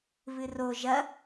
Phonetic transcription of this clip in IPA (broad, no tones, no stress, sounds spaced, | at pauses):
β ɨ r o ʒ ɐ